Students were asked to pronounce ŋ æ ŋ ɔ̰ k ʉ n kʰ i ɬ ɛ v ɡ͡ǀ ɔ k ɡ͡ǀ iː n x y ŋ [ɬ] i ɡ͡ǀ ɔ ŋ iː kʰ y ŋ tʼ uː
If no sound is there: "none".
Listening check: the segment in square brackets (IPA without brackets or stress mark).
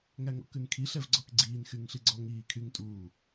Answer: ɬ